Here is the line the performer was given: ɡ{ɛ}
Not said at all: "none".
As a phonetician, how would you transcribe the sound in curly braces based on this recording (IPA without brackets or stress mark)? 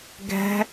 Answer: ɛ̤